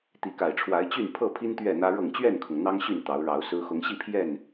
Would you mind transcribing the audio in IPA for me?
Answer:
t̪ i˨˦ k a˨˩ ɪ̯ ʈ͡ʂʰ w a˨˦ ɪ̯ t͡ɕ y˥˨ n pʰ ɤ˥˨ pʰ i˦ n t̪ ɥ ɛ˥˨ n̪ ä˦ ɻ ɤ˥˨ ŋ t͡ɕ ɥ ɛ˥˨ n kʰ ʊ˩ ŋ n̪ ɑ˦ ŋ ɕ y˥˨ n t̪ ɑ˨˦ ʊ̯ ɻ ɑ˨˦ ʊ̯ s ɹ̩˦ x ʊ˨˦ ŋ ɕ i˥˨ pʰ j ɛ˥˨ n

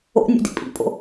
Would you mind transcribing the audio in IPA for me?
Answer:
o̰ nʲ o̰ d ḭ pʼ ḭ pʼ o̰

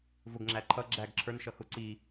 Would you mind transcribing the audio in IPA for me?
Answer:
v ʊ ɡ ŋ͡ǁ æ ǃʰ ʌ ɡ͡ǁ æ ɡ ǁʰ ə˞ n ʃ ʌ x ʊ ǀ i

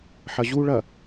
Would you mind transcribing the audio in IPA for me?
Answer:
ħ ɐ ʑ u ɭ ɐ

